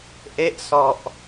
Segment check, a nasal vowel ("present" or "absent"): absent